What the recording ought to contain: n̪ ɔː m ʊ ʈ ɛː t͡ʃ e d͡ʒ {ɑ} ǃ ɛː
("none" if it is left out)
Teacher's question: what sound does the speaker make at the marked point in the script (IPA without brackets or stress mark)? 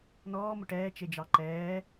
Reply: ɑ